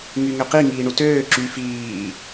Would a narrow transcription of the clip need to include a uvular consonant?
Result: yes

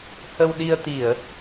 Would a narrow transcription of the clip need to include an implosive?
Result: yes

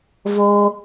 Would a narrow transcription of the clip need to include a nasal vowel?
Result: no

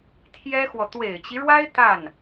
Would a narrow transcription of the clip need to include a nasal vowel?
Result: no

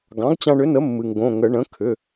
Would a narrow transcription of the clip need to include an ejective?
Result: no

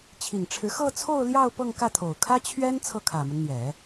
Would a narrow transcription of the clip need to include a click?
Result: no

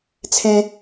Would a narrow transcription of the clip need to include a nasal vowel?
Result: yes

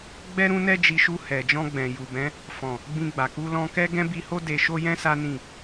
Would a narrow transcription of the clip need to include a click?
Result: no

